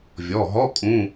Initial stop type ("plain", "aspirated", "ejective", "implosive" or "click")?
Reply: ejective